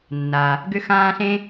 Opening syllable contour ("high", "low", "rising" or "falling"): low